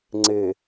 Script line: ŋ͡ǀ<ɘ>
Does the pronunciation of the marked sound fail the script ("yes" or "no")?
yes